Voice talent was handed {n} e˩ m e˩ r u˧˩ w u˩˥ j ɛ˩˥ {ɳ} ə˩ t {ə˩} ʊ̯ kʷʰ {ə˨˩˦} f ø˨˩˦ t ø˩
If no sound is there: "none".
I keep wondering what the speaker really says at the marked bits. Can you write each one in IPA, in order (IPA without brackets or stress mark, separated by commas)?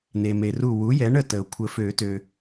n, ɳ, ə˩, ə˨˩˦